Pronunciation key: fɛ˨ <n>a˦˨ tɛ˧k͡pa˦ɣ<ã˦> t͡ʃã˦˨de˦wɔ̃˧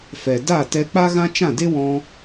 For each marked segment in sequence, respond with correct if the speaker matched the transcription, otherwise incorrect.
incorrect, correct

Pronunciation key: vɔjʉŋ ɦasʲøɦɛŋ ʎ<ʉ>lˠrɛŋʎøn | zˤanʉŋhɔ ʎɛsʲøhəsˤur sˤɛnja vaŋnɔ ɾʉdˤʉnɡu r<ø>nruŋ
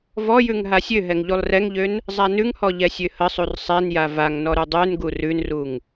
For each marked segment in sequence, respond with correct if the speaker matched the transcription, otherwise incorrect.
incorrect, incorrect

